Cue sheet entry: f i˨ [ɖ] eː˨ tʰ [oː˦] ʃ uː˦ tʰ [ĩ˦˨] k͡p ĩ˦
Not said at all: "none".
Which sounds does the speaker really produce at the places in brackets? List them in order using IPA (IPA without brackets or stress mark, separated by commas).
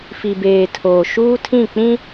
b, oː˨, ĩ˦˨